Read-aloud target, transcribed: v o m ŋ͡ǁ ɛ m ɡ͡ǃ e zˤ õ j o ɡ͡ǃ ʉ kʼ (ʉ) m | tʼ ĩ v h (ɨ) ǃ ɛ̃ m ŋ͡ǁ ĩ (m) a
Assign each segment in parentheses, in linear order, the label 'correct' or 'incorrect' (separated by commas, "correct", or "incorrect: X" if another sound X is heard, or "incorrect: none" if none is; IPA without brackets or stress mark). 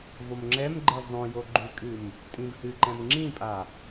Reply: incorrect: ɨ, correct, incorrect: pʼ